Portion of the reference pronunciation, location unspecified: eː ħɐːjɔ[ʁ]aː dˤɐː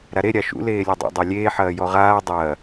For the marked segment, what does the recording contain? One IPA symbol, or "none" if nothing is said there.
ʁ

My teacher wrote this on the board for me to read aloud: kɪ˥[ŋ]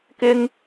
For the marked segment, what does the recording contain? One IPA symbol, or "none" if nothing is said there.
ŋ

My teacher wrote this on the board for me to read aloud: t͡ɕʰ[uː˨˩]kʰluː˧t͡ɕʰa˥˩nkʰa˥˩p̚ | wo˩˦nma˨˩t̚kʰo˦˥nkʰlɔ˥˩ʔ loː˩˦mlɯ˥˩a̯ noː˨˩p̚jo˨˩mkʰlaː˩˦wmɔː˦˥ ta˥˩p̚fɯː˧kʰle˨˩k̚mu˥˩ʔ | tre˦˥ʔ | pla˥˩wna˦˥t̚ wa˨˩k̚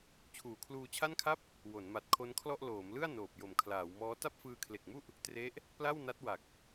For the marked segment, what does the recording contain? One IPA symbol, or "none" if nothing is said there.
uː˨˩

